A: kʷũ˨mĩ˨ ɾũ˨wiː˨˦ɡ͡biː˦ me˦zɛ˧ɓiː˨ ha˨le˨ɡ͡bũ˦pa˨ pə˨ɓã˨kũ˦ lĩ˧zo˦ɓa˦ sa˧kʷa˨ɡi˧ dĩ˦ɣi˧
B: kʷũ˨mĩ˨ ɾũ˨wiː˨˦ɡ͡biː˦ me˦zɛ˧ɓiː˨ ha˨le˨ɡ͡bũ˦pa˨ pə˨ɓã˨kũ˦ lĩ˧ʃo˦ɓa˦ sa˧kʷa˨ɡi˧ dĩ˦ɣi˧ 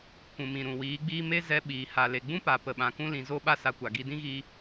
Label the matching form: A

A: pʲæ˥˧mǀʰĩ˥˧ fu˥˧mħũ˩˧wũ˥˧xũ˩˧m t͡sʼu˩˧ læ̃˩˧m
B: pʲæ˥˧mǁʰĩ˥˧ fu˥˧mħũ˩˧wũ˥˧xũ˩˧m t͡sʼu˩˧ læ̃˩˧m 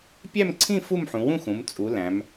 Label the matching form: A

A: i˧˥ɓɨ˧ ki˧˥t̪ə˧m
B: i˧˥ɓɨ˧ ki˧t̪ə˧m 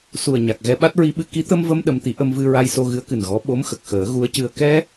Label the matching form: A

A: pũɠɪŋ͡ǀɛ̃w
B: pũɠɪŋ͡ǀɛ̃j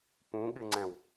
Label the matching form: A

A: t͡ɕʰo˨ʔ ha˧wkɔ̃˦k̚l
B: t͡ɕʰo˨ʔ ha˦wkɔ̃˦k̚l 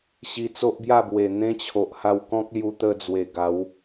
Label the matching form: A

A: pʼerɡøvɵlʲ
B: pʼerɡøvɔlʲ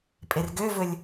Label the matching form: A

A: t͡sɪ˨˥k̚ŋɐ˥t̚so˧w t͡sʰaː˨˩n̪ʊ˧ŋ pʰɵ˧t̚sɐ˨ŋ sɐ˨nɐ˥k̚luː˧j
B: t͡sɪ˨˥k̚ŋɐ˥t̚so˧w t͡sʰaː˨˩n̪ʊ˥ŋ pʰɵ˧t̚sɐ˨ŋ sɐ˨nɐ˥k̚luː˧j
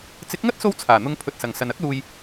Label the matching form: A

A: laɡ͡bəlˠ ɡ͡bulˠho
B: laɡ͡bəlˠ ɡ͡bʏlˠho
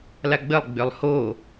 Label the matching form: B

